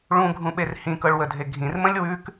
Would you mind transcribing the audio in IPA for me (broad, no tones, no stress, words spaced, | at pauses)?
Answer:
ɭũɡʱũɓer hĩkɤɭwədʱe ɡʱĩrmə̃lʲ wʉk